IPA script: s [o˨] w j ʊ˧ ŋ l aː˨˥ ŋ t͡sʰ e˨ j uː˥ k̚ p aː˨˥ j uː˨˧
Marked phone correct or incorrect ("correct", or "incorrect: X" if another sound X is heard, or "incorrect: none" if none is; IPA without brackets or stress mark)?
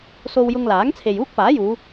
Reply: incorrect: o˧